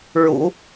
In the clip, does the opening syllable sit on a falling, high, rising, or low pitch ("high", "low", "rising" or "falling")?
low